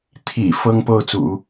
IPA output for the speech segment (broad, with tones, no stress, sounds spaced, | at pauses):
t̪ʰ ḭ˨˩ f ɤ˥ ŋ p o˥˩ ʊ̯ t͡s ṵ˨˩˦